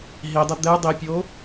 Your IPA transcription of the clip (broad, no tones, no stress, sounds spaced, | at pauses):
ɦ i dˤ ə d̪ ɛ dˤ i pʲ o